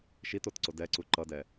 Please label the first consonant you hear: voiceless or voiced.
voiceless